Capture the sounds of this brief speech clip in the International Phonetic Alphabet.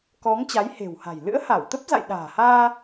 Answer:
kɔ˨˦ŋ t͡ɕa˨˦jhe̤˨˩wha̤˨˩j lɨ̰˧˥ə̯ha˧˩wt̪ə˦˥p̚za̰˧˨j ɗa̤ː˨˩haː˧

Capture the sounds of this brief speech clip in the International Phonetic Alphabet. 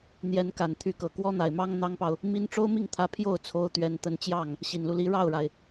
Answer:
n̪jɛ˧˥nka˨˩nt̪ʰy˧˥kɤ˨˩ kwɔ˥n̪a˨˩ɪ̯mɑ˥ŋ n̪ɑ˥ŋpɑ˨ʊ̯ | mi˥n ʈ͡ʂo˥ʊ̯mi˥˩ŋt̪ʰä˧˥ pʰjo˥˩ʊ̯t͡sʰo˧˥ʊ̯ t̪ɥɛ˥nt̪ə˥n t͡ɕjɑ˥˩ŋ | ɕi˨˩nlu˦li˧˥ ɻɑ˥˩ʊ̯ɻa˩ɪ̯

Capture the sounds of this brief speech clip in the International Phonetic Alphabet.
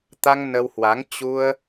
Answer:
t̪a˧ŋ nə˧whwa˨˦ŋ t͡ɕu˧ə̯

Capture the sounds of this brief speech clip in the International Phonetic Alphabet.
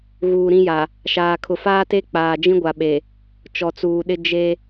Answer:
ɣuː˨ɾĩ˦ja˨ | ʃaː˨kʰʊ˨ faː˦te˦ k͡paː˨d͡ʒĩ˦ɡʷa˨ɓe˨ | t͡ʃɔ˨t͡suː˨ɗɪ˦ d͡ʒe˦

